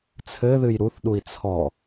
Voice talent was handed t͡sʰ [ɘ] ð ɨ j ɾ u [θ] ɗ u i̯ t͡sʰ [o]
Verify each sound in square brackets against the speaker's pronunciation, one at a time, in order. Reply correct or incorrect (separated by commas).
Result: correct, correct, incorrect